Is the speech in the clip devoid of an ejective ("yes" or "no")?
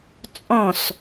no